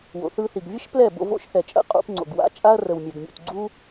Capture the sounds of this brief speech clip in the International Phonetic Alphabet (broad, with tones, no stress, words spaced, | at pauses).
wo̰˨ θɯ˧θi˨ɡ vʲə˦ʃ plɛ˦˨bo̰˧ vo̰˦ʃθɛ˨ t͡ʃʼə̰˦˨qʼṵ˧pŋ͡ǀo̰˨ɡwa̰˦ t͡ʃʼa˦ɐ̯rə˨wmʲɛ˨ɡmʲṵ˨t ɡ͡ǀu˦